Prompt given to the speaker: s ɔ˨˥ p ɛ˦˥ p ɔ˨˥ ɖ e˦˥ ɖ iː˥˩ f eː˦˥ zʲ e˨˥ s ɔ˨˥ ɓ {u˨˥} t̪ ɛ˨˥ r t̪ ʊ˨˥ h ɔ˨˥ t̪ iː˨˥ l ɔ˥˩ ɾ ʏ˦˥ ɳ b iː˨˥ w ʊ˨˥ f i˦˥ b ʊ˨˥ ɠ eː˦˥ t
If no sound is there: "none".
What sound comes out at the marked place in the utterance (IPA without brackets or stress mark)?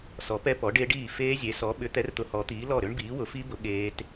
ʏ˨˥